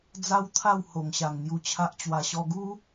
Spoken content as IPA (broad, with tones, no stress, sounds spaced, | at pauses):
d͡z a˦ w t̪ʰ a˥˧ w h o˨˩ ŋ ɕ a˨˩ ŋ n̪ j u˧ t͡ɕʰ a˦ ʔ t͡ɕ w a˧ ɕ ɔ˦ ɡ u˦